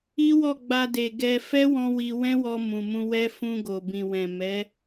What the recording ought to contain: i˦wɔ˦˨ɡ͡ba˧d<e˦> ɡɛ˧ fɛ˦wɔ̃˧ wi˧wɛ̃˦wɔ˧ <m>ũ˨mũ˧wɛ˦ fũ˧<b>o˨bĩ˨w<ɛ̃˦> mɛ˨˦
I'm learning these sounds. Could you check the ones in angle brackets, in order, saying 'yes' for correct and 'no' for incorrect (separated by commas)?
no, yes, no, no